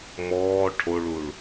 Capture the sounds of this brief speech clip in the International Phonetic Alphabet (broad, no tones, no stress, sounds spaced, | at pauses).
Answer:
m ɔː ʈʰ o ɭ u ɭ